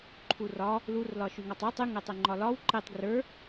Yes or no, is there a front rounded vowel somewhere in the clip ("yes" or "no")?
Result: yes